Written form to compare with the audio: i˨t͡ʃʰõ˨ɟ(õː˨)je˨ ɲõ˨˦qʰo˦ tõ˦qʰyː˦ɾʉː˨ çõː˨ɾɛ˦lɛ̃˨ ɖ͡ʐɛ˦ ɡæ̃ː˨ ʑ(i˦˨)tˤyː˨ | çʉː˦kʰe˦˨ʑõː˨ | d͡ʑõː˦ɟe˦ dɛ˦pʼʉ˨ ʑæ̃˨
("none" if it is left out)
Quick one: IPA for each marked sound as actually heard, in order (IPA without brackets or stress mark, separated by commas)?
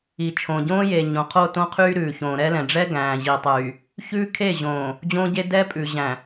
õː˦, i˨